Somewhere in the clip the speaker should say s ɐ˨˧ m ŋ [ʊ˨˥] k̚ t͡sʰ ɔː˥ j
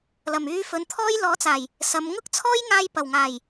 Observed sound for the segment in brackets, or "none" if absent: ʊ˥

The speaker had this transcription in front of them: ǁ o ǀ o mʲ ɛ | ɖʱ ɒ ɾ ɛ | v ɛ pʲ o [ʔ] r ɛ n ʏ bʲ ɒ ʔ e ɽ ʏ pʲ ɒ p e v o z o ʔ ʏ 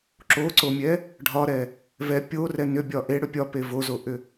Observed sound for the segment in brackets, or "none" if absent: none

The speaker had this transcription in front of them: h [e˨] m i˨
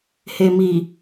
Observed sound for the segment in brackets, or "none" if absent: e˨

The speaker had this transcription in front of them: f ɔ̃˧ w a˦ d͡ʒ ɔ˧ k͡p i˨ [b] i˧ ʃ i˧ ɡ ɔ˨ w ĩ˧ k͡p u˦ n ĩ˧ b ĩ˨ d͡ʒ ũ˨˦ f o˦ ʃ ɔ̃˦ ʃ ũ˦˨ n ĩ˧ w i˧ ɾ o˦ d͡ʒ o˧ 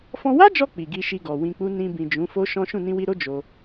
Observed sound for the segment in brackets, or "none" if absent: ɡ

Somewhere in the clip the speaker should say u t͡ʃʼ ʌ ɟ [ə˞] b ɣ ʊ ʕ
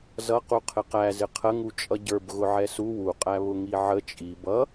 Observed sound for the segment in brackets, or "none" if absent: ə˞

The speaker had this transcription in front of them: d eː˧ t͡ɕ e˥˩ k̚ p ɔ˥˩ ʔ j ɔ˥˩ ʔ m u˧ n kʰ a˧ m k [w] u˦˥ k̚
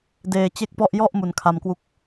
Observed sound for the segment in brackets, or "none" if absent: w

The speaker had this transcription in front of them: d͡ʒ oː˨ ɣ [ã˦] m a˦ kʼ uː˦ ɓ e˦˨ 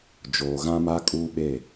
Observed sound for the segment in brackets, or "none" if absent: ã˦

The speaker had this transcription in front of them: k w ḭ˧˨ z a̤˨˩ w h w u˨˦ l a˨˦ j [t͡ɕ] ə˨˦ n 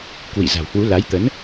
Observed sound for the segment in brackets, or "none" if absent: t̪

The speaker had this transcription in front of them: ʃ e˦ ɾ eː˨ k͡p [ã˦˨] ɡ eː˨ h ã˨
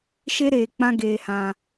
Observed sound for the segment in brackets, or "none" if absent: ã˧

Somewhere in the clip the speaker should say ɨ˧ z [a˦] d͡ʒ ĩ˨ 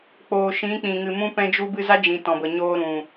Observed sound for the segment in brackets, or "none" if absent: a˦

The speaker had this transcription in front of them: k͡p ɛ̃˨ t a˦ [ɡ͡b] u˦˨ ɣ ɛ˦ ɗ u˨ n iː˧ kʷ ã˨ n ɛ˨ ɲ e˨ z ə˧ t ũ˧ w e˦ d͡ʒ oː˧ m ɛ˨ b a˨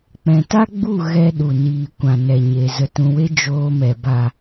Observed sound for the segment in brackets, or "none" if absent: ɡ͡b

